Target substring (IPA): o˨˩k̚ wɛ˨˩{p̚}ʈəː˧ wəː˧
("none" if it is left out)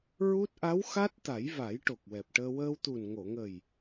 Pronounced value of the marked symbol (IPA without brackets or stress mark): p̚